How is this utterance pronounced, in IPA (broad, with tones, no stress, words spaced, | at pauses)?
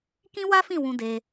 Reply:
kĩ˦wa˦fĩ˦˨ wũ˧de˧